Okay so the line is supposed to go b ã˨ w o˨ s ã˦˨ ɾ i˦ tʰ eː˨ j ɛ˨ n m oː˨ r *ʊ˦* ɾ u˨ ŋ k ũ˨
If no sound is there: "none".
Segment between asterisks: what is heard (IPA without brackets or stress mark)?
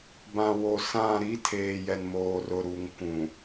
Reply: ʊ˨